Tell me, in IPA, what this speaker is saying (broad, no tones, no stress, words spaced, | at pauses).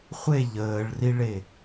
χʷe ʎəːɭriɭe